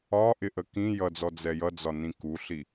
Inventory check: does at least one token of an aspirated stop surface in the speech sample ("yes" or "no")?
no